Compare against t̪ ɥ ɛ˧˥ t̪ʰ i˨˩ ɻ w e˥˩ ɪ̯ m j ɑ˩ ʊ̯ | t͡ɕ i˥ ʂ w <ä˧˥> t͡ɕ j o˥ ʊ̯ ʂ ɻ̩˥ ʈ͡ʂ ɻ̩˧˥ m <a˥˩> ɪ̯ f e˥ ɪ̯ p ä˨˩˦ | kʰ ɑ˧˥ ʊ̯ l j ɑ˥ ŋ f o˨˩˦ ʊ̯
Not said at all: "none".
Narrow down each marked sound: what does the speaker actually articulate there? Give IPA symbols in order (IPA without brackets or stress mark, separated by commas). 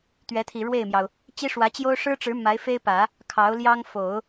ä˧˥, a˧˥